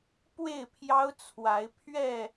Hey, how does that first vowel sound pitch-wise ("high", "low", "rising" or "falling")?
falling